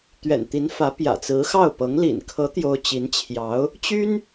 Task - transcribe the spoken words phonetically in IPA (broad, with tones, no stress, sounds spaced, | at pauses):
t̪ ɥ ɛ̰˨˩ n t̪ i˧˥ n f ä˧˥ p j ä̰˨˩ t͡s ɹ̩˧˥ x ɑ˥˩ ʊ̯ p ɤ˧˥ ŋ l ḭ˨˩ n kʰ ɤ˧˥ t̪ j o˥ ʊ̯ t͡ɕ i˧˥ n t͡ɕʰ j ɑ˧˥ ʊ̯ | t͡ɕ y˥ n